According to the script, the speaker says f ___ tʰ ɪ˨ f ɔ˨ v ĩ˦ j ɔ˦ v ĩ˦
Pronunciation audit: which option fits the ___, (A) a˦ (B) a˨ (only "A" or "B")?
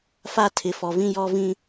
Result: A